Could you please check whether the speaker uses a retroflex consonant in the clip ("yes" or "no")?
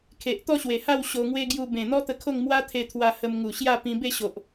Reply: no